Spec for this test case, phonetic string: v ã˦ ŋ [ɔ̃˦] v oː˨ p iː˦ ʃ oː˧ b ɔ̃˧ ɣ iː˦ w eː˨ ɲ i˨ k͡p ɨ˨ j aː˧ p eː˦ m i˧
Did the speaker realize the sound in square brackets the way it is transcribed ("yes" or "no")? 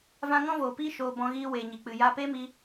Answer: yes